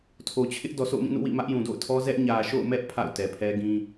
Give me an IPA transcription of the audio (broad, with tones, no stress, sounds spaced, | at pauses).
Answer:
tʰ o˨ t͡ɕʰ ɪ˦ ʔ d ɔ˨ s o̰˦˨ ʊ̯ m ĩ˦˨ n ṵ˦˨ w ḭ˦˨ m ä˦ ʔ j ũ˨ d o̰˦˨ ʊ̯ tʰ ɔ˦ z ɛ˦ ʔ ɲ ä˨ ʃ o̰˦˨ ʊ̯ m ɛ˦ ʔ pʰ a̰˦˨ ʊ̯ t ɛ˨ pʰ ɛ˦ ɡ ĩ˦